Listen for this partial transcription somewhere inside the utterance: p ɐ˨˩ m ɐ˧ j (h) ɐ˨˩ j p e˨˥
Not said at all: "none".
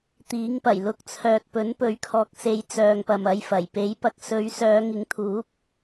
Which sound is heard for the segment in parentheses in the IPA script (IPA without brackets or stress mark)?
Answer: f